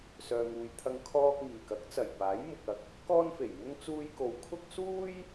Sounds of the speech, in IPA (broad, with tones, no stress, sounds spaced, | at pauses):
s œː˨ ŋ uː˨ j t̪ʰ ɐ˧ ŋ kʰ ɔː˧ k̚ ŋ iː˨˩ k ɐ˨˥ k̚ t͡s ɐ˨˩ j p aː˨˥ j m ʊ˨ k̚ ɐ˨˥ k̚ | k ɔː˥ n f e˨˩ j m ʊ˥ ŋ t͡s uː˧ j k o˨ w kʰ ʊ˥ k̚ s uː˥ j